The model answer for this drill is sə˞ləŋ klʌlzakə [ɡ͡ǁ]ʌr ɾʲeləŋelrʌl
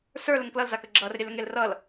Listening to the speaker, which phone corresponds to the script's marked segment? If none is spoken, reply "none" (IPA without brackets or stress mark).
ɡ͡ǁ